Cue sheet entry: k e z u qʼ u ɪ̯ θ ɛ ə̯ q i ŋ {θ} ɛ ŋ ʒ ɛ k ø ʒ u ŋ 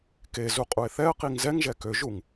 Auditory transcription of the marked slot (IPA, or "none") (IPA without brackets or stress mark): z